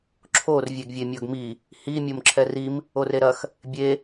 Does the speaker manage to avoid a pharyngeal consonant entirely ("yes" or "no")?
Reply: yes